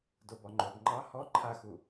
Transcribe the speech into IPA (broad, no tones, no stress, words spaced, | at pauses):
dobɔŋ͡ǃob ŋ͡ǃɑ hɔ ǃʰaxu